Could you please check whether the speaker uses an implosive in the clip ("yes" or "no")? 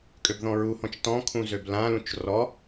no